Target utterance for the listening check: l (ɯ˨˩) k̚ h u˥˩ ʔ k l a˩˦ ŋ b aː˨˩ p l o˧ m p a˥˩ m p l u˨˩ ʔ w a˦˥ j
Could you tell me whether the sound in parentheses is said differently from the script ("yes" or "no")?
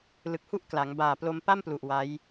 no